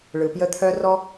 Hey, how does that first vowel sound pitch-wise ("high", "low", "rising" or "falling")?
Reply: low